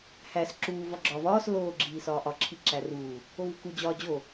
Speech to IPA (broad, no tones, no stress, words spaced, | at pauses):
hæs ǁuː vɒɡ͡ǁɒːvɒːs loː ɡ͡ǁiːsɒːʔɒ ǁʰiǁæruː | ovuku d͡ʑɒːd͡ʑo